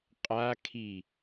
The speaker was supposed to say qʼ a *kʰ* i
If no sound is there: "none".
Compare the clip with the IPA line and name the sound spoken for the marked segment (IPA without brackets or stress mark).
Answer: kʰ